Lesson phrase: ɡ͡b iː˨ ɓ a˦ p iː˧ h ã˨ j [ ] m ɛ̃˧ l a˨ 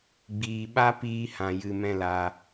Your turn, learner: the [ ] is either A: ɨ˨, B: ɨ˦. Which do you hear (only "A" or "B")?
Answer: A